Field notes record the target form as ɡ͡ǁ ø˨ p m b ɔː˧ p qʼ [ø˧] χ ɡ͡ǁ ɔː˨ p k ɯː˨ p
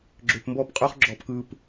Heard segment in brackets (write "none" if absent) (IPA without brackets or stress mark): ø˧